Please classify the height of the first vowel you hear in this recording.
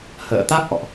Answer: mid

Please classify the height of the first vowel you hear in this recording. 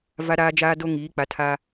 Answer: low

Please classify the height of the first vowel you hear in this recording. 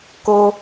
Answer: mid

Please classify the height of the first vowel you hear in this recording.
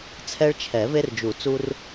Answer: mid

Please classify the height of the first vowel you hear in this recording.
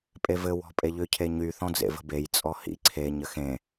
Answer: mid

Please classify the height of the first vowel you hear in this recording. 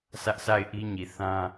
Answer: low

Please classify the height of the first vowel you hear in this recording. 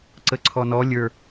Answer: mid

